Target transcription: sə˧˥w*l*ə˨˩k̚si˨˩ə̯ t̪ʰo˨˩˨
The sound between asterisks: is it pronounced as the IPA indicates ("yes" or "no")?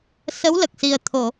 yes